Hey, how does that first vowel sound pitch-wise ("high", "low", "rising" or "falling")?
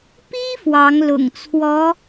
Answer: high